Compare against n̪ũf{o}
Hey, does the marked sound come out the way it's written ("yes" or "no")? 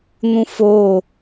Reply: yes